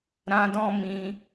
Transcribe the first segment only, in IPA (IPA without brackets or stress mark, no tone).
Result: ɾ